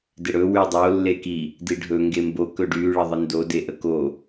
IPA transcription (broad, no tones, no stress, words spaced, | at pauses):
dɪɽɵ wydˤo lːeki | diɖʱɵ ŋɡembo kɵɖy ɭəðˤɪndo deʔəko